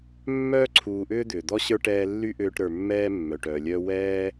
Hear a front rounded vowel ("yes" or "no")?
yes